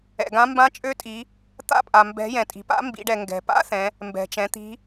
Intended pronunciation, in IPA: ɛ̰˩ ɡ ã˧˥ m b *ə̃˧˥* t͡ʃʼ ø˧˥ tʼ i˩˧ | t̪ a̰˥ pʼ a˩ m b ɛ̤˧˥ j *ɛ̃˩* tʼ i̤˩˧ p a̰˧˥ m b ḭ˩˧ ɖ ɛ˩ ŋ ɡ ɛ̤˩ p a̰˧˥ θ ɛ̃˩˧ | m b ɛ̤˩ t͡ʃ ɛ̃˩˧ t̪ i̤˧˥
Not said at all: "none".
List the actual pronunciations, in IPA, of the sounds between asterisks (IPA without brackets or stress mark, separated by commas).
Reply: ã˧˥, ɛ̃˩